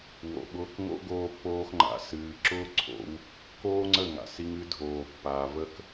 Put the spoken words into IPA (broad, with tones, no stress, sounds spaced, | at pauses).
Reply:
w o̰˨ ɓ ʊː˧ k ŋ o̰˦ ɡ oː˧ pː oː˧ x ŋ͡ǃ a̰˨ s ɨː˨ ǁ ʊː˦ ǀʰ o̰˧ w | k oː˦ ŋ͡ǀ ə˦˨ ŋ a̰˨ s i˧ ŋ ɨ˨˦ dʱ oː˨ pː aː˨ v ə˦ k